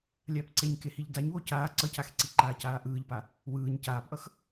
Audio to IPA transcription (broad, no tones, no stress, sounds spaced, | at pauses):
lʲ aː p ǀ e ɲ k e h i ʎ d a ɲ w o c aː ǀ ʌ c a x ǀ i ǃ aː c aː ʔ ɯː ʎ p a | w ɯː ɲ c aː p ʔ ʌ x